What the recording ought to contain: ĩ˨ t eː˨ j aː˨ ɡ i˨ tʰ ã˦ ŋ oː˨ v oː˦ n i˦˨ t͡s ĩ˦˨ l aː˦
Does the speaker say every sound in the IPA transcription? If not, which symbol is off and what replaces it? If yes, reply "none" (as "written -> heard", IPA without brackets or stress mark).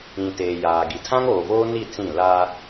none